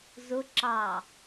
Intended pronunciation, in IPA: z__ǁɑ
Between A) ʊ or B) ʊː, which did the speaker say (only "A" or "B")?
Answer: A